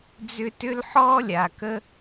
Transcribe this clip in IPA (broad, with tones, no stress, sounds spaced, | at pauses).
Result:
d͡z ʏ˦ t ʏ˥ l ħ ɔː˥ lʲ a˩ k ə˦